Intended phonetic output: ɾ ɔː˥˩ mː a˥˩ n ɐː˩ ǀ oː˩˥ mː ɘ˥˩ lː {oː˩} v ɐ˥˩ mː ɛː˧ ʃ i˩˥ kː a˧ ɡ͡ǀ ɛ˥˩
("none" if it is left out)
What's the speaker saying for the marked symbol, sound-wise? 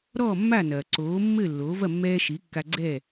oː˩˥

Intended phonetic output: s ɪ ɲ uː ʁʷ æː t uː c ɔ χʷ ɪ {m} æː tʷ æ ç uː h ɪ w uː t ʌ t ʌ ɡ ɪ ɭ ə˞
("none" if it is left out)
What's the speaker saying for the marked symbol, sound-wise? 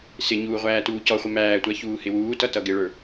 m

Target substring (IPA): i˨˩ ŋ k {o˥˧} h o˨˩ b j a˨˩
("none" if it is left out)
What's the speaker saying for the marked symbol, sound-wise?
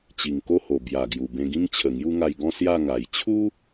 o˥˧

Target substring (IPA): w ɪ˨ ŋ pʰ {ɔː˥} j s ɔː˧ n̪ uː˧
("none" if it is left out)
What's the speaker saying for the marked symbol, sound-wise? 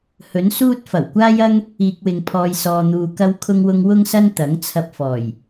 ɔː˧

